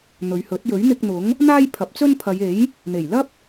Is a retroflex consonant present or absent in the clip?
absent